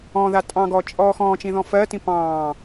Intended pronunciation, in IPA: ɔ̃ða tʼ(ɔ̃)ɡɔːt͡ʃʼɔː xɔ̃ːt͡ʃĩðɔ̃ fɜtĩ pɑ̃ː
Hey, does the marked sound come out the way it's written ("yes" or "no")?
no